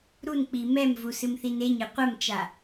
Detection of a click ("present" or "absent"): absent